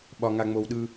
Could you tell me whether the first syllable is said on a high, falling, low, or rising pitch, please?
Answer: low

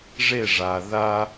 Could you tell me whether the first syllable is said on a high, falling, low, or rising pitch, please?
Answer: falling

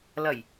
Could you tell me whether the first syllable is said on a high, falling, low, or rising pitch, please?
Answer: low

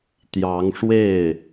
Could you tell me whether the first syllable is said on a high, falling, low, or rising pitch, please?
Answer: rising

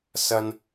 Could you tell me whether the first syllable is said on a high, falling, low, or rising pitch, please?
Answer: high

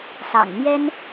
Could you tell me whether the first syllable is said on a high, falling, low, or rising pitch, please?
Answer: low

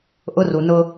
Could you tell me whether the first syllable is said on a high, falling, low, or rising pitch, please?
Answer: high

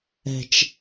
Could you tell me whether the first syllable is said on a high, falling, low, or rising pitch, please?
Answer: low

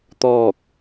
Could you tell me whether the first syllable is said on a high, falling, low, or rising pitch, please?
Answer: falling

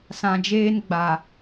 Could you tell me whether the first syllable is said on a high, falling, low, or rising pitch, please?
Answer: low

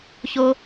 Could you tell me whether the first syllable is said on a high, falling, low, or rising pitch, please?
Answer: high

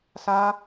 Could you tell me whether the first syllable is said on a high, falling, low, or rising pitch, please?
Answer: high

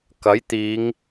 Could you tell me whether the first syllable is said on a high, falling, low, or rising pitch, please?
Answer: rising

